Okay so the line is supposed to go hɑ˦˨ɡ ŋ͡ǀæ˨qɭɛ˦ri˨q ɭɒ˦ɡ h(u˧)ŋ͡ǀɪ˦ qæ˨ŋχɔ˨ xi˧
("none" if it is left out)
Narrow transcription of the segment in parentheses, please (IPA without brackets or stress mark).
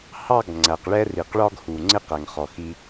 u˨